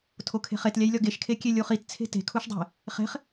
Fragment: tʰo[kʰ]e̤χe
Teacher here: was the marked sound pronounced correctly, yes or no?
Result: yes